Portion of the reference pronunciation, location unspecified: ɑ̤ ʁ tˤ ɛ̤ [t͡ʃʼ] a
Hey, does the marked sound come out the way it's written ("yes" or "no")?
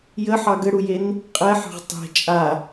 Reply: yes